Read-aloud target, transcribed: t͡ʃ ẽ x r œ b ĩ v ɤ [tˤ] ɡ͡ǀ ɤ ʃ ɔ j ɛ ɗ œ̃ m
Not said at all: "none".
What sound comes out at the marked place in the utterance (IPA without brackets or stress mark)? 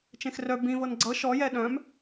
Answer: n